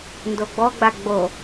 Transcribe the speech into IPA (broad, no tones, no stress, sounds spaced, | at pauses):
n d o ɡ͡b ɔ ɡ͡b a ɡ͡b o